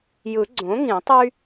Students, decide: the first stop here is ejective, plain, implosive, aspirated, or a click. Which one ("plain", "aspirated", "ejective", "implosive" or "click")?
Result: click